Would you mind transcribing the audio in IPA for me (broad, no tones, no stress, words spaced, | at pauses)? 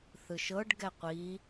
θɯʃɤɖ ɡɛqʷi